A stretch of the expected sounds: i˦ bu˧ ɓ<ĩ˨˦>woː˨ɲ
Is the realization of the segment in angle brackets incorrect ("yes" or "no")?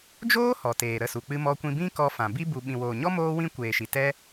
yes